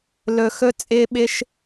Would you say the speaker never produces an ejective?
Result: no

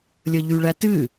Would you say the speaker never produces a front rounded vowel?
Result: no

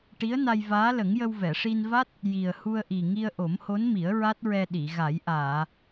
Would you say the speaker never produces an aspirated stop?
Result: yes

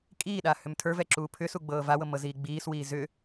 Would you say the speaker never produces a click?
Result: no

